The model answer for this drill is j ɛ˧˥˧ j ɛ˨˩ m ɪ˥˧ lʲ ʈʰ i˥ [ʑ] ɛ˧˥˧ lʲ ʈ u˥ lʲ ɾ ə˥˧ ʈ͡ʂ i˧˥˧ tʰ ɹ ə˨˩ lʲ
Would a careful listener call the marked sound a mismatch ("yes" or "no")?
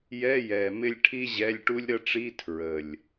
no